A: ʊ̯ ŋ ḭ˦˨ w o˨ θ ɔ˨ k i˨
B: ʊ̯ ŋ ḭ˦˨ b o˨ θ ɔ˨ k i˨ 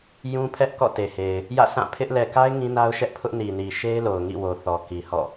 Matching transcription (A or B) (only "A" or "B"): A